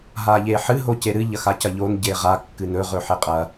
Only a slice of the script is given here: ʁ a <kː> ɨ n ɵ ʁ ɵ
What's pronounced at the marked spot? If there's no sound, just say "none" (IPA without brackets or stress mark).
kː